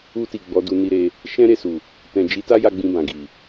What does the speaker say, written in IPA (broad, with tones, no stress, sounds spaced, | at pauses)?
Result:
u˧ t i˨ ɡ͡b ɔ˨˦ d u˧ n i˧ ɾ e˧ | ʃ ɛ̃˦ ɾ e˦˨ s u˨ | t ɛ̃˨ d͡ʒ i˨˦ t a˦ j a˧ ɡ͡b ĩ˧ b ã˨ ɡ i˨